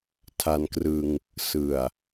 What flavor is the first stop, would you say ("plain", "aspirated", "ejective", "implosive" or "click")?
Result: aspirated